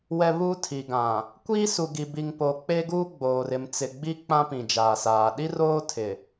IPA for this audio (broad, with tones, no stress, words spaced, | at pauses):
wɛ˨ βuː˦tʰi˨ɡã˨ | kʷiː˦su˨ɡi˨ bi˨ŋpo˨ k͡pe˦ɡuː˦ɡ͡boː˨r ɪ˨mt͡sɪ˨ɡ͡bi˦ k͡pã˦pĩ˨d͡ʒaː˨saː˨ ɗi˦roː˦tʰɪ˨